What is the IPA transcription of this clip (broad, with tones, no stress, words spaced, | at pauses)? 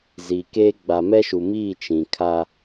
ziː˨keː˦ ɡ͡ba˨mɛ˦ʃu˨miː˦˨ t͡ʃĩ˨kʰa˦